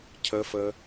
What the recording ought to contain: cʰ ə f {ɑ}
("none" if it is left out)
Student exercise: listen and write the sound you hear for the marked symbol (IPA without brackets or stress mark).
ə